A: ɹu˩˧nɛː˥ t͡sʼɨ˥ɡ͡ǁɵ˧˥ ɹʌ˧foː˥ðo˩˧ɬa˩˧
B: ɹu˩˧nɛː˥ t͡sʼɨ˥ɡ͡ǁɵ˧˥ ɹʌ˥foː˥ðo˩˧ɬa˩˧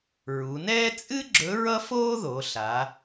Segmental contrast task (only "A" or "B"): B